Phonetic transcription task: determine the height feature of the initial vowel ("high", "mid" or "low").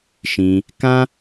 high